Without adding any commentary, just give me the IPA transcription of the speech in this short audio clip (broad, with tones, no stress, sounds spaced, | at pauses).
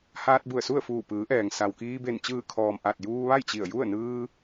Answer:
h aː˧ t̚ b u˧˩ ə̯ s u˥˨ ə̯ f uː˧˩ p ɯː˩˧ ʔ ɛː˩ ŋ s a˩ w k iː˧ b e˧˩ n t͡ɕ ɯː˧˩ kʰ ɔː˩ m ʔ a˧˩ t̚ j uː˧ ʋ a˥˨ j t͡ɕ i˧˩ ə̯ j u˥˨ ə̯ n ɯː˧